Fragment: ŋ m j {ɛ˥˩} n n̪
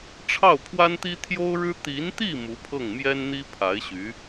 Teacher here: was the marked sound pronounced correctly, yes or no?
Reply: no